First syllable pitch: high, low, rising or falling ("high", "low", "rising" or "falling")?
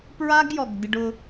high